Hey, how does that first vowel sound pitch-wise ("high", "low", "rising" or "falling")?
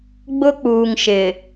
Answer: high